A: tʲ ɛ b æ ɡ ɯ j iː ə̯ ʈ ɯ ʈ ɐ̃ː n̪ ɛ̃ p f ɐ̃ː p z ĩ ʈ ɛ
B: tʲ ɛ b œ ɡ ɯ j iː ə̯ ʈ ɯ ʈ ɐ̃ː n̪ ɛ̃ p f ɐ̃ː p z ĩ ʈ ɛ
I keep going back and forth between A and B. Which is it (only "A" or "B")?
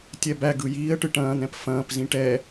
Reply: A